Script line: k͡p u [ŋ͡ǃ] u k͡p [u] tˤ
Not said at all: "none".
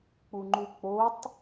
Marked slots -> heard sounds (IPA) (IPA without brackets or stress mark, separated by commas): ŋ͡ǃ, o